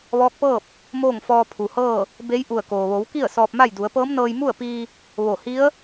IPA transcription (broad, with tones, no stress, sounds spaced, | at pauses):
ʋ ɔː˧˥ k̚ p ɤː˥˨ p̚ | m oː˥˨ ŋ f ɔː˧ pʰ u˩ h ɤː˥˨ | b e˧˥ j ʔ u˧˩ ə̯ k oː˩ ʋ o˩˧ w k i˥˨ ə̯ s ɔː˧ p̚ m a˥˨ j d u˩˧ ə̯ p ɤː˧˥ m n ɤː˧ j m u˥˨ ə̯ p iː˧ | ʋ o˧˩ h i˧˥ ə̯